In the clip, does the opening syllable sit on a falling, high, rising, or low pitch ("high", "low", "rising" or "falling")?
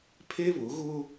high